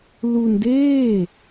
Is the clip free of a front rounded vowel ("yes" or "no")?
yes